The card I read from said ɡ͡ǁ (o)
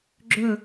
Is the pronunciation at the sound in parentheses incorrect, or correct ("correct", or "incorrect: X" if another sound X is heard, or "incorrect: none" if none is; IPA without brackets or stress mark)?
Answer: incorrect: ɵ